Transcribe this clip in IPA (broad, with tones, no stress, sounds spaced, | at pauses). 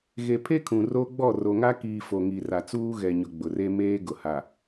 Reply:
ɣ e˨ pʰ e˦ kʰ ũ˨ r o˦ ɡ͡b ɔ˦˨ r o˨ ŋ a˦ k iː˨ f o˨ ŋ i˨ r a˨ t͡s uː˦ ɣ ɛ˨ ɲ ʊ˨ ɡ͡b ʊ˨ r e˦ m eː˦ ɡ ʊ˨ h a˨